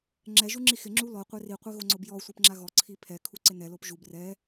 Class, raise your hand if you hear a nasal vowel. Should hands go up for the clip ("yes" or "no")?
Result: no